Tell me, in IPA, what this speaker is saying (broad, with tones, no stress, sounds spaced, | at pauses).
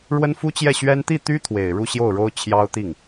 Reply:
ɻ w ə˥ n f u˥ t͡ɕ j ɛ˥˩ ɕ ɥ ɛ˥ n t̪ i˥˩ t̪ y˥ t̪ʰ w e˨˩ ɪ̯ ɻ u˥˧ ɕ j o˥˩ ʊ̯ ɻ o˥ ʊ̯ t͡ɕʰ j ɑ˥ ʊ̯ t̪ i˥˩ ŋ